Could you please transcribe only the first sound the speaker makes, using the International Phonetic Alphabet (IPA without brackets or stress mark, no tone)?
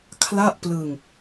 kʰ